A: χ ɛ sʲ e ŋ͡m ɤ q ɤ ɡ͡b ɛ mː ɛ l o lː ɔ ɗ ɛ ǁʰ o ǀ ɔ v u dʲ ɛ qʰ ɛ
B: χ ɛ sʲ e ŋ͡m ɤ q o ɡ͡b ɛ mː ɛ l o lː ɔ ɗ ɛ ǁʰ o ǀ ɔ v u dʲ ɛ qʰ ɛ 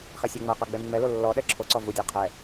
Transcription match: A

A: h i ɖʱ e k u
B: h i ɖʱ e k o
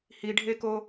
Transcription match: B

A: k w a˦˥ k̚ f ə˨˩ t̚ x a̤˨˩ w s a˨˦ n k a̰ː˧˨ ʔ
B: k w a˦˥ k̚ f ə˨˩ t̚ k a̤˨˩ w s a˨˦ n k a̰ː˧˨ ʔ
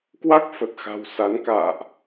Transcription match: A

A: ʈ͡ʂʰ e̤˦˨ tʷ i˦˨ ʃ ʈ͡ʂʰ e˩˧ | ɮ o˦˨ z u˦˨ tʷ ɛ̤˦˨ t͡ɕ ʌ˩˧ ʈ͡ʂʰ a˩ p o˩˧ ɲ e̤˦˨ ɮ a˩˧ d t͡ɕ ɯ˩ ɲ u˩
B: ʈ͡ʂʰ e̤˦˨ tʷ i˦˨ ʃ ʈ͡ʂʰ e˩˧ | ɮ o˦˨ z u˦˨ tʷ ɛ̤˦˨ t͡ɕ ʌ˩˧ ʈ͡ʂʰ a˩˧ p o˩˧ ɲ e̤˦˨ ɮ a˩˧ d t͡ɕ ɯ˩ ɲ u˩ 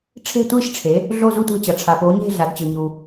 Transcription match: A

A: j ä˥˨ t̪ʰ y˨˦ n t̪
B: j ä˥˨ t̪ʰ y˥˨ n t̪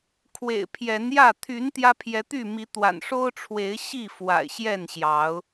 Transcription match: A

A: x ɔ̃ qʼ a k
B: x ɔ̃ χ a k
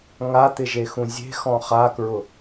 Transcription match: B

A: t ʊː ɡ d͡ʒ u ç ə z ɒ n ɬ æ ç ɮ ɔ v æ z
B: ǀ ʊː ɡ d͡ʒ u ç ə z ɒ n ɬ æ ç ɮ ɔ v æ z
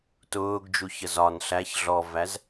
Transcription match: A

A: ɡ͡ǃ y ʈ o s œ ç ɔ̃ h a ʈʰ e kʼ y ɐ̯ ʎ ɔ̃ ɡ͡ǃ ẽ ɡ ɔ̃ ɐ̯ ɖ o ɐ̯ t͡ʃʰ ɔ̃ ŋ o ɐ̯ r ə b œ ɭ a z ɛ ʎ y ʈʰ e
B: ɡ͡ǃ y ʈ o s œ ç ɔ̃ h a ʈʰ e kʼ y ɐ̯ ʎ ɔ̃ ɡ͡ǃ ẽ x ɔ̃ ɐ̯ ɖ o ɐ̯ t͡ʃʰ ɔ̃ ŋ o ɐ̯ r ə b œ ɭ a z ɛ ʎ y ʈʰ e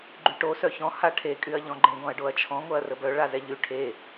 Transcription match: A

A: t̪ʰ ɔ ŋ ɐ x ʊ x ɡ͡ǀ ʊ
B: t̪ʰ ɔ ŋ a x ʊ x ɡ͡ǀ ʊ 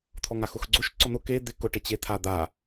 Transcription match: B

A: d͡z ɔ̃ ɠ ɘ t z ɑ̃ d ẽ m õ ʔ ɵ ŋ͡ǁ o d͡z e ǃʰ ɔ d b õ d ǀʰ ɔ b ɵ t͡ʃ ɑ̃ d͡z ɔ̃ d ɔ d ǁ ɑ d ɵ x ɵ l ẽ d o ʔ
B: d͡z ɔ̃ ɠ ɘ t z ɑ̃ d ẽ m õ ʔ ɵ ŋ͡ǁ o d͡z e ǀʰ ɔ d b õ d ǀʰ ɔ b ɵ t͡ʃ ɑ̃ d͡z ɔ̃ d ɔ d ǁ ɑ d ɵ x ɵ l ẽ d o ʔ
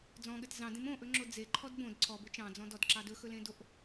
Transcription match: A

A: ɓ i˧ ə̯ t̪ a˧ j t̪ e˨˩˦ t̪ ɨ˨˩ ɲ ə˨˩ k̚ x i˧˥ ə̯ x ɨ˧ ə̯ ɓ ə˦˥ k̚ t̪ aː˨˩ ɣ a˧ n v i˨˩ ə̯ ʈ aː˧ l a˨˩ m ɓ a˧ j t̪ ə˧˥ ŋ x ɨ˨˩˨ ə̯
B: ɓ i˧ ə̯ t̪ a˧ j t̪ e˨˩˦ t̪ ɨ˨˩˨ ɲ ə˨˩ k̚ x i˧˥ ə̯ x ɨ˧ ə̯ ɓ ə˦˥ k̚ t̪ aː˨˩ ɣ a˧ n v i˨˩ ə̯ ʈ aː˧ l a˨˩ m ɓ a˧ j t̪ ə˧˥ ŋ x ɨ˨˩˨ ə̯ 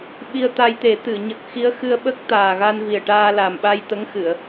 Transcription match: B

